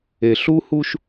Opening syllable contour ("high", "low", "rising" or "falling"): low